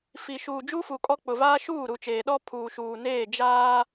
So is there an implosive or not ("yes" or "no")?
yes